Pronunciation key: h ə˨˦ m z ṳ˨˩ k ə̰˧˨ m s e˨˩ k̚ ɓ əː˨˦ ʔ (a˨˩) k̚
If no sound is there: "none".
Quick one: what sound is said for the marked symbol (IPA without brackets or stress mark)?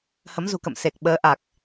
a˨˩